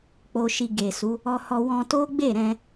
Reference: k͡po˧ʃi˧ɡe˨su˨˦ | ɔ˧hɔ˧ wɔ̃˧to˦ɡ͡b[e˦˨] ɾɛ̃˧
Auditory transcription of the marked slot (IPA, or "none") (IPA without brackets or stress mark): e˦˨